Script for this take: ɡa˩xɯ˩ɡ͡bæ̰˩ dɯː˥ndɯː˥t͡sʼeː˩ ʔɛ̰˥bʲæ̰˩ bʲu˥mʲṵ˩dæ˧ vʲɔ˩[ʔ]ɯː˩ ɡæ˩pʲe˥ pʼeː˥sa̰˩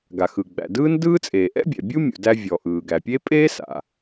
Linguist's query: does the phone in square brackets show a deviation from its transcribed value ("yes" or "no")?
no